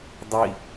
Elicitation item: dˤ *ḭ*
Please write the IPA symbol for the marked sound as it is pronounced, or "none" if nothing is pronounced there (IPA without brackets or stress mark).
i